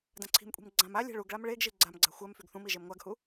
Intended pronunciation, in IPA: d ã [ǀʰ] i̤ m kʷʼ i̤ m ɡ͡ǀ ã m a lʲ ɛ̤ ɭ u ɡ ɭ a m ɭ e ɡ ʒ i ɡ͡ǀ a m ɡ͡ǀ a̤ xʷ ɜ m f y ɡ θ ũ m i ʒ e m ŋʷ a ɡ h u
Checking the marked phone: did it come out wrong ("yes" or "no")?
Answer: no